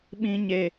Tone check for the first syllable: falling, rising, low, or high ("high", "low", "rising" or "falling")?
high